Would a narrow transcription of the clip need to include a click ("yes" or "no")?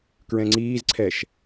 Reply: yes